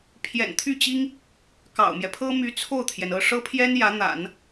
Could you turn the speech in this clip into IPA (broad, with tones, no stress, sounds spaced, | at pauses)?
pʰ j ɛ̰˨˩ n t̪ʰ y˥˩ t͡ɕ i˥ ŋ | k ɑ̰˨˩ ʊ̯ m j ɛ˦ pʰ ɤ˥ m y˧˥ t͡sʰ o˥˩ ʊ̯ t̪ʰ j ɛ˩ n ɤ˥˩ ʂ ɤ˥ pʰ j ɛ˥ n j ä˧˥ n̪ a̰˨˩˦ n